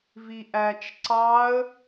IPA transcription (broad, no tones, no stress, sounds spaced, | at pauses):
v i ʔ æ t͡ʃ ǀ ɑ ə̯